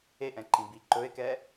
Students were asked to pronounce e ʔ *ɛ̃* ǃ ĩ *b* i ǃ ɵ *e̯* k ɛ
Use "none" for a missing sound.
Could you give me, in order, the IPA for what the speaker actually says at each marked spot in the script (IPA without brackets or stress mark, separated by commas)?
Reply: ɛ̃, b, e̯